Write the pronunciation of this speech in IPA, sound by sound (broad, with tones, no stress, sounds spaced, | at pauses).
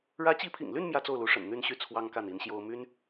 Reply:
ɻ ä˧˥ t͡ɕ i˧˥ pʰ ḭ˨˩ ŋ l y˥˧ n m j ä˥˧ t͡s o˥˩ ʊ̯ l u˧˥ ʂ ə̰˨˩ n n̪ y˥˧ n ɕ y˥˩ t͡sʰ w ɑ˥ ŋ k a˥˩ n i˧˥ n ɕ j o˥ ʊ̯ m y˥ n